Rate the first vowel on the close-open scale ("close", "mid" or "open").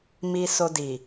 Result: close